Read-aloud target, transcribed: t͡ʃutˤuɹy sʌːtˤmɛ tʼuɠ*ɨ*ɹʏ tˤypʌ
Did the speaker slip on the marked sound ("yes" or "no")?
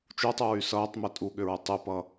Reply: yes